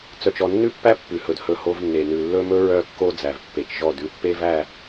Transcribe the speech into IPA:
t͡s œ˨ t͡ʃ ɔ˨ nː ʉ˦˨ pː æ˦ pː ʉ˨ h ɵ˨ d h ɵ˦ h o˦ v nː e˨ n ʉ˨ lː ɵ˦ m ɵ˦ ɹ œ˦ kː o˦ d͡z æ˨ v pː e˨ t͡ʃ ʒ ɔ˦˨ d ʉ˦ pː e˦ v æ˦˨

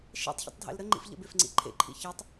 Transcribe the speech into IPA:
ʃ ḛ tˤ ç ə̰ tˤ dʱ ḛ l ɾ ə ŋ͡ǃ ḭ f ʎ ə̰ b e f ŋ͡ǀ ḭ ǃʰ ḛ ǃʰ ḭ ç e tˤ

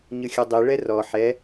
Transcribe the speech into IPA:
ɲ ɯ xʲ ɯ dˤ i ɭ ɛ r ɔ ħ ɛ

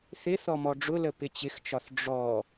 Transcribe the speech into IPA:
θ ɪ θ ɔ m ɔ ɖ͡ʐ ʊ l ə p ɪ t͡ɕ ɪ x t͡ʃ ɒ θ ɖ͡ʐ ɔ

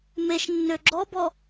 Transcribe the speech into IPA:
m e ʃ nː ø ɡ͡ǁ ɔ b ɔ

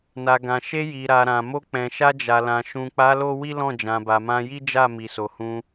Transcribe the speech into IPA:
n a˨ ɡ ã˨ ʃ e˧ j i˨ ɾ a˨ ɾ ã˨ m o˧ k͡p ɛ̃˨ ʃ a˧ d͡ʒ a˨ l ã˨ ʃ ũ˨ k͡p a˨˦ l o˦ w i˦ l ɔ̃˦˨ d͡ʒ ã˨ b a˨ m ã˧ j i˦ d͡ʒ a˦˨ m i˨ s o˨ h ũ˧

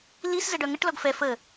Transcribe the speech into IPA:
l i s z ə ɖ œ ŋ ə ʈ l ɔ ɡ f ɛ f ə

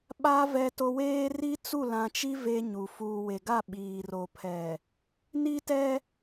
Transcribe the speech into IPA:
ɓ a˦ v ɛ˦ t o˦ w eː˦ r i˦ t͡s u˦˨ l ã˨ t͡ʃ i˦ v e˦ ɲ u˨ f uː˨ w e˨ ɡ a˦˨ ɓ iː˨ r o˨ pʰ ɛ˨ | n i˦ t ɛ˦

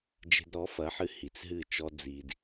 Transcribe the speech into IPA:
d͡ʒ e̤˧ d ɾ ɔ˨˦ f ɐ˨˦ ħ ɨ˧ h i˨ t͡s ɦ ɨ˦˨ t͡ʃ ɔ˦ d͡z i˧ d

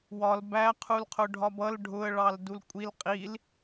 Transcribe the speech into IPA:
w ɒ l b æ qʰ u l qʰ ʊ ɖʱ ɒ b ʌ l ɖʱ ʊ ə̯ ɭ ɑ l d u l kʷʼ i l qʼ i l

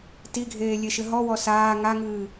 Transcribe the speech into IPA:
t i ɡʱ eː lʲ e ʃ ɘ ɦ ɔ w ɔ s aː ŋ a ŋ ɨː

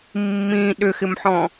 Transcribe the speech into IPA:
mː ĩ ɗ ʏ x ɪ m ħ ɔ̃

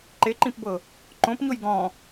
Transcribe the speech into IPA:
ǃ e ǃ ĩ p b ɤ | ǃ õ p ɲ o j ɡ ɔ̃

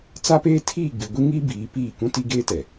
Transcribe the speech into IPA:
t͡s a˦ p eː˦ tʰ iː˦˨ ɡ͡b i˨ ɡʷ i˦ ŋ i˦ b iː˨˦ p iː˦˨ k ũ˦ t i˦ ɡ eː˦ t ɛ˨

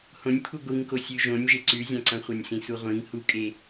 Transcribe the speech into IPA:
h õ nʲ pʰ u ɡʷ i ŋ k o sʲ ʉ ʒ õ nʲ ʒ e ǀ ʉ zʲ ã ǀ ɐ̃ χʷ a nʲ s ĩ s u ʁʷ ĩ ŋ h u kʼ e

